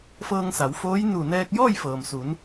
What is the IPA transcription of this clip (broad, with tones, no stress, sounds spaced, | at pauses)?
f ɤː˧ ŋ s a˩˧ w f oː˧˥ j n u˧˩ n ɛː˧ k̚ j ɔː˥˨ j f ɤː˩ m s u˩˧ n